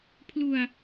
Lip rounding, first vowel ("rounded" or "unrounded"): rounded